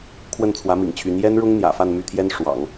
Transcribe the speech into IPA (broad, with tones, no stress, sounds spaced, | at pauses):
kʰ w ə˥˩ n t͡sʰ w ä˧˥ m ḭ˨˩ ŋ t͡ɕʰ y˧˥ n j ɛ˥ n ɻ ʊ˥ ŋ n̪ j ä̰˨˩ f a˥˧ n m y˥˩ t̪ʰ j ɛ˥ n ʂ w ɑ̰˨˩˦ ŋ